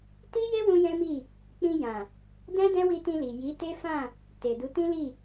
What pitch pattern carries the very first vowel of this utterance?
high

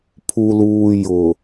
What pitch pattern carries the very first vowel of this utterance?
low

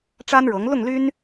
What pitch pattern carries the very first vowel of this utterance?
high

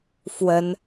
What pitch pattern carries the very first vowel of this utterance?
rising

